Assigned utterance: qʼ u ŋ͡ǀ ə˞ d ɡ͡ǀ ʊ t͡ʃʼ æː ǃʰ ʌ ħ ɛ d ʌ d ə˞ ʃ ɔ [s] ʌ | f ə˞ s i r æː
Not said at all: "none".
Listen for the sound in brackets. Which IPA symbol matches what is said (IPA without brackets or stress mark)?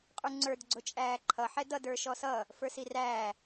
s